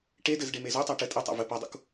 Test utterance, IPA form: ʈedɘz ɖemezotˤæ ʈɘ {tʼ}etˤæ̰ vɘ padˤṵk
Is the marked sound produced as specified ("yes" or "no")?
yes